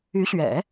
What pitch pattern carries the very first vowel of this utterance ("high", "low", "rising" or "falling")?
rising